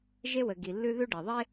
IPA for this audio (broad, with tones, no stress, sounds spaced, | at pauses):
ʒ e˧ w ə˨ ɡ i˨ lː ʉ˦ ð ʉ˦ ɖ e˨ ðˤ e˦